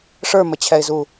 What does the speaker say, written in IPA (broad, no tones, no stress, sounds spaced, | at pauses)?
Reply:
ʂ ə˞ m ə t͡ɕʰ ɛ ɪ̯ z u